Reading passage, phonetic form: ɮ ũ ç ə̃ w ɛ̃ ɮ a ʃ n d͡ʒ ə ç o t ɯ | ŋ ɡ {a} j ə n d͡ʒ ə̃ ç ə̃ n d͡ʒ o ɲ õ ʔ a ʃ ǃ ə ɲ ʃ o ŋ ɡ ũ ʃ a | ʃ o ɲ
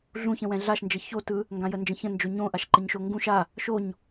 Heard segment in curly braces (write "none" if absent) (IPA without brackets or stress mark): ã